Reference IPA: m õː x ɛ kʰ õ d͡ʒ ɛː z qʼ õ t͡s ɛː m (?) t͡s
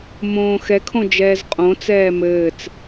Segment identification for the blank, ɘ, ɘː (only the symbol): ɘː